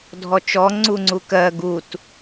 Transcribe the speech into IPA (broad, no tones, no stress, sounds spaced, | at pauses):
dʱ ɔ t͡ʃ ɔ ŋ͡ǀ u ŋ͡ǀ u k ɜ ɡ u t